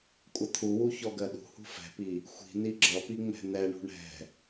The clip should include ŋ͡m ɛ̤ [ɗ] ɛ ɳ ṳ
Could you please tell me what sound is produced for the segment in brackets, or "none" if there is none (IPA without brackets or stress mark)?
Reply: n̪